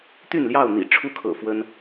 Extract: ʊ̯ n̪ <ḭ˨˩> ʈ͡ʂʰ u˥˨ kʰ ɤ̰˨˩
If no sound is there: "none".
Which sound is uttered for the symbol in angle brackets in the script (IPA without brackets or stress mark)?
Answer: ḭ˨˩